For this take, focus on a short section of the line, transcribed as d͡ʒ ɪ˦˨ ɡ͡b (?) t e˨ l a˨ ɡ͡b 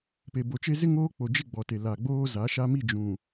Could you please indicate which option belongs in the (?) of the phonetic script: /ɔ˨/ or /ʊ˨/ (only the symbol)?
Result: ɔ˨